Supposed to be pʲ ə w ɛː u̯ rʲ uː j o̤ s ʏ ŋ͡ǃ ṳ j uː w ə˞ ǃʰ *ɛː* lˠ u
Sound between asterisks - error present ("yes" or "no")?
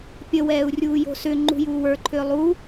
yes